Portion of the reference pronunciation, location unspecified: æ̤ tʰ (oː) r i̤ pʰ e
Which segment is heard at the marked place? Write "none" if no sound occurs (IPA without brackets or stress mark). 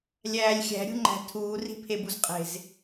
uː